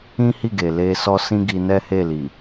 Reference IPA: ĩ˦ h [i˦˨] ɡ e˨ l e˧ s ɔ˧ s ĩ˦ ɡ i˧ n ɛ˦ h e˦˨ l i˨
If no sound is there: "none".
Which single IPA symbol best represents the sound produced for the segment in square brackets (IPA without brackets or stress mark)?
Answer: i˦˨